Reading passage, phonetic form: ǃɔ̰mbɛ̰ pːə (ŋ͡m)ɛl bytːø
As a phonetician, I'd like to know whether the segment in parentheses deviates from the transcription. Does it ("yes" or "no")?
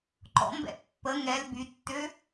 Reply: yes